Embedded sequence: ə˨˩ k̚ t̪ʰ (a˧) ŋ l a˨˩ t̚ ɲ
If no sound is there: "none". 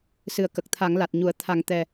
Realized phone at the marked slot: a˨˩˦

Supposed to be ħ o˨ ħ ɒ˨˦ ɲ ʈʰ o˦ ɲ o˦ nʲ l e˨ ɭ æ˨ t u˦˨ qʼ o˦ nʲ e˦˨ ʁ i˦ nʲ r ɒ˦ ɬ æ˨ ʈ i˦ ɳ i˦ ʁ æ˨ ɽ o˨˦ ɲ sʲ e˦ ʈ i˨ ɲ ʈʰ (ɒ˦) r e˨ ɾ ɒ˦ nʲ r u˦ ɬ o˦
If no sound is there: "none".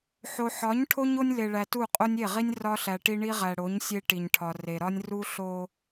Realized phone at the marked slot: ɒ˨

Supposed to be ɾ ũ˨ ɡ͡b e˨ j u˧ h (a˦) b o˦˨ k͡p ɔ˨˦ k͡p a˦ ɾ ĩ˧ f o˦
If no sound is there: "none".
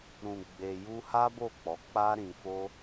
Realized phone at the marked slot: a˦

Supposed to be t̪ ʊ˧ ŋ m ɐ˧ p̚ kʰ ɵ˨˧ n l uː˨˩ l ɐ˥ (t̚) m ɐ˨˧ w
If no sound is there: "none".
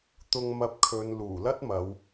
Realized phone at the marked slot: t̚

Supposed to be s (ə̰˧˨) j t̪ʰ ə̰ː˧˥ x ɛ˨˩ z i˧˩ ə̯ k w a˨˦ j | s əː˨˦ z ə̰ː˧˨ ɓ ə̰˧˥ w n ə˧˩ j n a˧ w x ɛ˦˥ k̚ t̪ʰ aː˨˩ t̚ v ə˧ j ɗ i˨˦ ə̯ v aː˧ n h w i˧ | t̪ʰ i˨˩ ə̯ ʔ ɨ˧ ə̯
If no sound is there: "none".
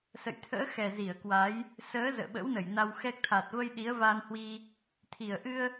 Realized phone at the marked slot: ə̰˧˨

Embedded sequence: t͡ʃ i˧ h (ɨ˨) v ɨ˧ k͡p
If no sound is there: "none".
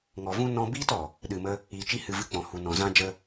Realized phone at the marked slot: ɨ˨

